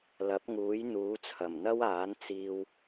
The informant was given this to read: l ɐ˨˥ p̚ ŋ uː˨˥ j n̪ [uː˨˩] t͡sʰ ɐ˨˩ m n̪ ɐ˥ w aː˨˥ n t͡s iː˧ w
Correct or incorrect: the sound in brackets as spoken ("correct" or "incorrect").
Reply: incorrect